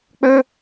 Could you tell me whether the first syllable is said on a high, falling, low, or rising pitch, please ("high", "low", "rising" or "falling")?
high